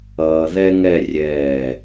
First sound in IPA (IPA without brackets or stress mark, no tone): ʌː